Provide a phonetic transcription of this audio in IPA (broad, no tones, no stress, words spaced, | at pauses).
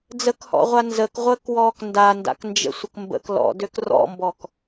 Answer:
d͡zəkhɔ̰ʁʷa nzəkʁʷəːkwɔːk ndanda̰knd͡ʒə̰sʷək mbə̰k lɔ̰døk rɔ̰mbɔk